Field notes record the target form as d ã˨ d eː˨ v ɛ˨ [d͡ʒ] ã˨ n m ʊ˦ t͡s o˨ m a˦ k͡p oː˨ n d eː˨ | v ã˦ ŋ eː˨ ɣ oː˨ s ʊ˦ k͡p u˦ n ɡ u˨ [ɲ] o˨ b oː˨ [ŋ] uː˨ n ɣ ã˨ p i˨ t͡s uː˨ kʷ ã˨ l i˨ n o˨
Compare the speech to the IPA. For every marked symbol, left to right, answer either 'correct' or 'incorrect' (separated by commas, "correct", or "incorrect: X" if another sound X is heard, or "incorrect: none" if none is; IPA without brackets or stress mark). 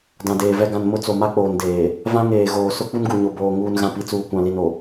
incorrect: ɡ, correct, correct